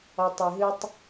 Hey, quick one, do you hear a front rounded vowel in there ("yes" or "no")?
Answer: yes